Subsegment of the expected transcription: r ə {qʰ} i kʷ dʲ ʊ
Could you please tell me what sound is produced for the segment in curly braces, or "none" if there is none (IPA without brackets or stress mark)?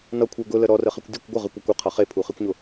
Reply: χ